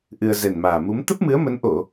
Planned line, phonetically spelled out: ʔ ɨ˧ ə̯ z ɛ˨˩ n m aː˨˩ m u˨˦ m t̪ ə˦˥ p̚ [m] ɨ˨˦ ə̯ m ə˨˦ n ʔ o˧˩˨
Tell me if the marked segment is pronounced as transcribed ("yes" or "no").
yes